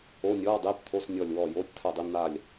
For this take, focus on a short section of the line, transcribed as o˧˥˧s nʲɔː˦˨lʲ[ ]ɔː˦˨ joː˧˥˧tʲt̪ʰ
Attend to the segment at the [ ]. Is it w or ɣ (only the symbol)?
w